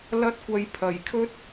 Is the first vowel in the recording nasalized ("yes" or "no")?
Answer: no